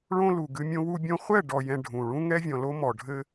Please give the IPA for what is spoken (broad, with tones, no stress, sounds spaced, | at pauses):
ɭ õ˦ l u˨ ɡ ɨ˦ mʲ õ˦ w u˦ bʲ õ˦ χʷ ɛ˦˨ ɖ ɔ˨ j ɛ̃˨ ɖʱ ũ˨ ɭ ũ˦ ŋ ɛ˦ vʲ ɔ̃˨ l o˦ m ɔ˨ ɖʱ ɘ˦